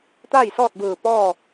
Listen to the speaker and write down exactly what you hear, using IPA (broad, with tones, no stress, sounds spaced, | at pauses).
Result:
t̪ a˥˨ j s ɔː˥˨ t̚ b ɯː˧˩ p ɔː˥˨